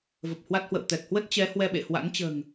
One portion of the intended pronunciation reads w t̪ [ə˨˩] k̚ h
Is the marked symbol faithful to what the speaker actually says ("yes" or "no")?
no